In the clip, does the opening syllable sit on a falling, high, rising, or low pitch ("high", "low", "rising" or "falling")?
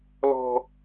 high